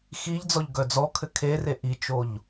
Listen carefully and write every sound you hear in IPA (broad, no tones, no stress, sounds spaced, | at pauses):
x i ʎ d͡z ɔ ʎ ɡ œ d͡z ɔ kʰ ɘ kʰ e r e ʔ i t͡ʃ o ʎ